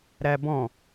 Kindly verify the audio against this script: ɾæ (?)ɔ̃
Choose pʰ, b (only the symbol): b